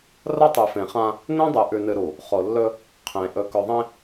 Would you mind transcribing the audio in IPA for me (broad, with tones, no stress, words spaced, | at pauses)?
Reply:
rɐ˦tˤɨ˨fẽ˨χã˦ | nẽ˦dˤɨ˨ ʔʉ˨nɨ˨ɾu˨ | χo˨lːɵ˦ | qʰẽ˨ ʔɵ˨kɵ˨ðˤẽ˦